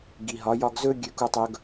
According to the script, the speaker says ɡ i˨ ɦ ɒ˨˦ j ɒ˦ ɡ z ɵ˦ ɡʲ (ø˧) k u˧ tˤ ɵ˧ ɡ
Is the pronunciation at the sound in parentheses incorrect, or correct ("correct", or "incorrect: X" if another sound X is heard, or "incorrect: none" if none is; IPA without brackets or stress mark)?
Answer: correct